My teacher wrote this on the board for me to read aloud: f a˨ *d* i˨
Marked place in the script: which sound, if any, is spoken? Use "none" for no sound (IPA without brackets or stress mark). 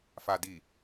d